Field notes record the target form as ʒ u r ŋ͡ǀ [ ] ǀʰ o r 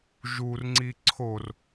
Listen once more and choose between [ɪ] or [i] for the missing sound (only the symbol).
i